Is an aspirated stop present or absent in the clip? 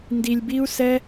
absent